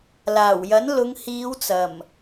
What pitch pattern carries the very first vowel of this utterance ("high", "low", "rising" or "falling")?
low